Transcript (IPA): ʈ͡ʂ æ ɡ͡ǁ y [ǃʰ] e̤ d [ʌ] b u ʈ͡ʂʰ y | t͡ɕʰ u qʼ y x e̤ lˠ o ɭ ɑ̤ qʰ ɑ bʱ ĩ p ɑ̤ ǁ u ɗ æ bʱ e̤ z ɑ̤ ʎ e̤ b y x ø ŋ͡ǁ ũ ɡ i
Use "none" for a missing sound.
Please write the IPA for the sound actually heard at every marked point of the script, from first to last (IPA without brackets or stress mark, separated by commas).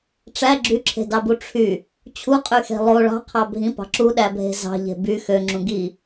ǁʰ, ɑ